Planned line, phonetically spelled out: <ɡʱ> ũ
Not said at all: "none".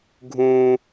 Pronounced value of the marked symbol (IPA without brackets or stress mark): ɡʱ